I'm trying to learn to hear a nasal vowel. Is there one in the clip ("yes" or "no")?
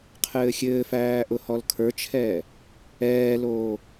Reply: no